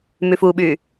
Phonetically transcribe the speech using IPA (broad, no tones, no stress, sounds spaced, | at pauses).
m y f u ɓ y